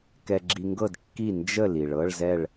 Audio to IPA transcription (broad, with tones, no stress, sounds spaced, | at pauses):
k ɛ˧ ɡ͡ǁ i˧ ŋ ɡ ɤ˥˨ d kː i˥˨ n d͡ʒ ə˥˨ l i˩ ɭ ɤ˧˥˧ ɭ z ɛ˥˨ ɭ